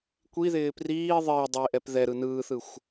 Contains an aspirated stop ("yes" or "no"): no